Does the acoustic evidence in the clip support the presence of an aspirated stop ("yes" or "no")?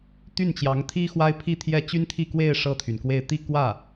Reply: yes